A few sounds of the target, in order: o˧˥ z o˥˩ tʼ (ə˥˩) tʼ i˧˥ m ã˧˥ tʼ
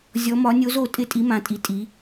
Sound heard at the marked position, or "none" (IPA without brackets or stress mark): ɪ˥˩